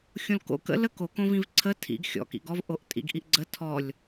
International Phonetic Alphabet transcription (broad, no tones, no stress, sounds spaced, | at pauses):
xʲ õ l k o̰ k ə̰ l ə k o k õ v ĩ v ǀʰ ə tʰ ḭ ɡ xʲ ɔ̰ k ḭ ɡ ɔ v ʔ o ʔ tʼ ḭ ɡ ʔ i ʔ ɡ͡ǀ ə tʰ ɔ lʲ